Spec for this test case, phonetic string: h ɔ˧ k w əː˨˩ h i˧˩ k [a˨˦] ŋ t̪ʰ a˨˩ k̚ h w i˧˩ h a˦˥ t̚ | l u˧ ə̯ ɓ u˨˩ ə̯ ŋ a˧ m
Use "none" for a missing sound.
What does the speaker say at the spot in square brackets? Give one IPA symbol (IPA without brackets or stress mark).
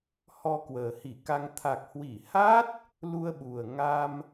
a˧